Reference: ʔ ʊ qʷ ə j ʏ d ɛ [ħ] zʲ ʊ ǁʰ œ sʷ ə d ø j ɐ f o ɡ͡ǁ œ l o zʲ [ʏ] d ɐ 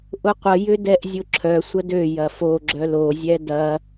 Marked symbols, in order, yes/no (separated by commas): no, no